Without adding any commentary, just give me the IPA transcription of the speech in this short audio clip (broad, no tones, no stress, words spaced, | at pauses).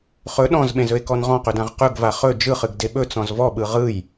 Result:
χɵ ɗɔ̃zɓẽzɵe̯kɔn ʁɔ̃qɵdãʁ qɵɡva χɵ d͡ʒɯχɨɡde ɓɵt͡sɔ̃z vɔɓɯ ʁɯj